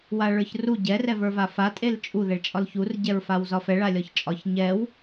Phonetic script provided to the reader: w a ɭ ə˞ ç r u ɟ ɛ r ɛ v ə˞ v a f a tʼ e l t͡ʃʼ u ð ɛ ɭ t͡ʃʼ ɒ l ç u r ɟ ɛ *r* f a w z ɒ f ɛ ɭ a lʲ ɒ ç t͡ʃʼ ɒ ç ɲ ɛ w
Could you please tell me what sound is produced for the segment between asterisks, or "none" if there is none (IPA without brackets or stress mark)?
ɹ